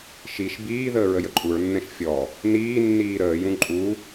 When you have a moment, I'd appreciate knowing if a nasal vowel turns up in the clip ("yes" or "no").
yes